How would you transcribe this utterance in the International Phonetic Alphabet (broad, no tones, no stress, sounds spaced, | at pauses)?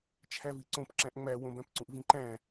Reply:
t͡ʃʰ æ v i ǀ õ p ǁ æ̃ ʔ ŋ͡m æ w õ b æ̃ p ǀ ũ ʔ v ĩ ǃ æ̃